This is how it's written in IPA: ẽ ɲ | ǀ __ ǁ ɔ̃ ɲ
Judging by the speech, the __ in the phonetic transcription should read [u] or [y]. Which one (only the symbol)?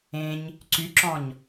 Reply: y